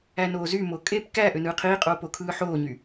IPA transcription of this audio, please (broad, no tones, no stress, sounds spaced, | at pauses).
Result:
æ n oː z y m o kʼ e p k æ ʔ ø n ɯː qʰ iː qʼ oː p o kʰ ɯː ħ oː ɲ y